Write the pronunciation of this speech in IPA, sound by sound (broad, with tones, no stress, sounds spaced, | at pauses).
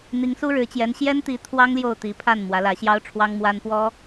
n̪ i˧˥ ŋ s u˥ ɻ ɻ̩˧˥ t͡ɕ j ɛ˧˥ n ɕ j ɛ˥ n t̪ i˧˥ t̪ʰ w ɑ˥ ŋ l j o˥˩ ʊ̯ t̪ i˧˥ pʰ a˥˩ n m w ä˧˥ l ä˧˥ ɕ j ɑ˥ ʊ̯ ʈ͡ʂʰ w ɑ˥ ŋ m w a˥ n p w ɔ˥